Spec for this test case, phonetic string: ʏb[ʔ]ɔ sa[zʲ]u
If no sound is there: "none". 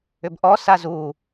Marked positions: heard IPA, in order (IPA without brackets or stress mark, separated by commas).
ʔ, z